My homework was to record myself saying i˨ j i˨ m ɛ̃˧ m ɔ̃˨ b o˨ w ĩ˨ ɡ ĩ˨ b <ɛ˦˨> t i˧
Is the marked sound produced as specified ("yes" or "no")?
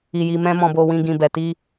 no